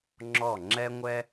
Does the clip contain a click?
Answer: yes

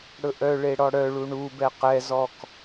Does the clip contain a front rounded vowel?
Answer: yes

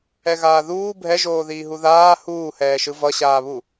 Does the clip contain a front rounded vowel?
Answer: no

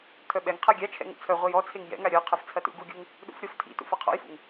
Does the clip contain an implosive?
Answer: yes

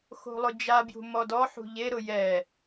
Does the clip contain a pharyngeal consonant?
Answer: yes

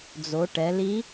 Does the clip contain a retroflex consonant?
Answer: yes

